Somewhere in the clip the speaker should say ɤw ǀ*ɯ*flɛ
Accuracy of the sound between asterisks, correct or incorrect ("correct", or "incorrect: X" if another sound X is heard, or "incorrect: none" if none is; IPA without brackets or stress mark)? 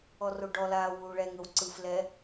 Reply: correct